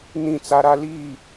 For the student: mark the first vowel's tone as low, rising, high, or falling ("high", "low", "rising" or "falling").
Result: falling